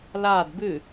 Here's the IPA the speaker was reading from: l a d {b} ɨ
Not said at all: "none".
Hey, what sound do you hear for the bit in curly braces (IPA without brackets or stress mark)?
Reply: b